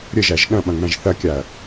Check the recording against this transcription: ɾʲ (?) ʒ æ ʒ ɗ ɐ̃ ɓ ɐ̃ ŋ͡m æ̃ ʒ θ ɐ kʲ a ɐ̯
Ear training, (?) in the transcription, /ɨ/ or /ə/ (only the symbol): ə